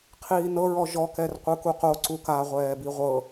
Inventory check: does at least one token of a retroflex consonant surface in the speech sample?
no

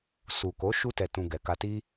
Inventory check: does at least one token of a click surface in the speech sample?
no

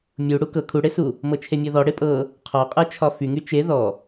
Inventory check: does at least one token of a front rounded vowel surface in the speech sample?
yes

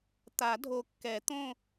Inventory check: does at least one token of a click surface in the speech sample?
no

